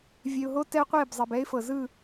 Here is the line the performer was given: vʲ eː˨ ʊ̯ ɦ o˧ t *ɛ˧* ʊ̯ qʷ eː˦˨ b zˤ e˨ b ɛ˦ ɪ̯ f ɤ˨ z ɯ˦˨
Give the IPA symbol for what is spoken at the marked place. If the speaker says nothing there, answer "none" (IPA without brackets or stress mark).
ɛ˦